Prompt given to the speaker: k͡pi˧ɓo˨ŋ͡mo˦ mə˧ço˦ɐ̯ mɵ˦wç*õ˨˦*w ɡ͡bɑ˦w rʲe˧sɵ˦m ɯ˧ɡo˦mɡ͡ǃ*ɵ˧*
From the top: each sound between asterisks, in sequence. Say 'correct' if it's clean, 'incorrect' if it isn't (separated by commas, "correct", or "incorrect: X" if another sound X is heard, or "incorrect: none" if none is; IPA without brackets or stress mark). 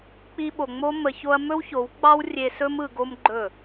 incorrect: o˨˦, incorrect: ɵ˦˨